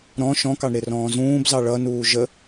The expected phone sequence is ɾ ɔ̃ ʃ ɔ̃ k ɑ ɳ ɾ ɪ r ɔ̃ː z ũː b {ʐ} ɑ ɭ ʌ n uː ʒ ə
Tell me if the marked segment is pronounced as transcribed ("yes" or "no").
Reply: no